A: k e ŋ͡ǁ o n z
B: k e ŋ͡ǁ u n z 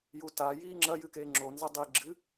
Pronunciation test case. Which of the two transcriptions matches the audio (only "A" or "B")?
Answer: A